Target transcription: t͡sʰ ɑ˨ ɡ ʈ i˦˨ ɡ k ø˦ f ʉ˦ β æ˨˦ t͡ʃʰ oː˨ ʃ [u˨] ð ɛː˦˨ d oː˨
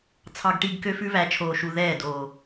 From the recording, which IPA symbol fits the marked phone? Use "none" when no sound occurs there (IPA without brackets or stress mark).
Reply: u˨